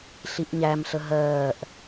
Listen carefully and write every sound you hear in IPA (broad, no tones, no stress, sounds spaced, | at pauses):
ɬ i ʔ ɲ æ m ɬ ə ɦ ɜː ʔ